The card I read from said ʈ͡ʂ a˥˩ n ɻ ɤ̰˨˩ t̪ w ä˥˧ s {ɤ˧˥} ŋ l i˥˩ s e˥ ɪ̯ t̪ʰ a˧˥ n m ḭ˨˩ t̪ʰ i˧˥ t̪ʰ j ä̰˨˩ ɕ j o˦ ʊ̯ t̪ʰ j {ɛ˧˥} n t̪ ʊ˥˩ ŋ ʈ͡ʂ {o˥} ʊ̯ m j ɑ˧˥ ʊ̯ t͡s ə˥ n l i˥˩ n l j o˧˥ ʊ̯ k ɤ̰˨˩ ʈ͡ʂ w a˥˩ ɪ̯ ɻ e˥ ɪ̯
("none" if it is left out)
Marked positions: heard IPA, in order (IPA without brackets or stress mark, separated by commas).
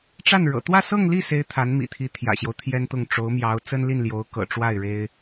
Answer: ɤ˥˧, ɛ˥, o˧˥